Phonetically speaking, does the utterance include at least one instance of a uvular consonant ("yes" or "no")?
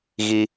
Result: no